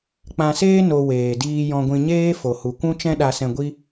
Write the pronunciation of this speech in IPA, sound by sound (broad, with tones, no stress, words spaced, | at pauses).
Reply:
k͡pã˧seː˦ no˧ weː˨diː˧ jɔ̃˧ɡʷĩ˧ɲeː˦ fo˨hu˨kʷũ˦ t͡ʃɛ̃˦ɗa˧sɛ̃˧ ɡʷi˦